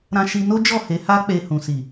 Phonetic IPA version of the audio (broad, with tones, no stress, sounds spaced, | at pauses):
ɾ ã˧ ʃ i˧ n o˦ d͡ʒ ɔ˦˨ h e˨˦ h a˦ k͡p e˧ h ũ˨ s i˨